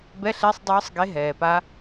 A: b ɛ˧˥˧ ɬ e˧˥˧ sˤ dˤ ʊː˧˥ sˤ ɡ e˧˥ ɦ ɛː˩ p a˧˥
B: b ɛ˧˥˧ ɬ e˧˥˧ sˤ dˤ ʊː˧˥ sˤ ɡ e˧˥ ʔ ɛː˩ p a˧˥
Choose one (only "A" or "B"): A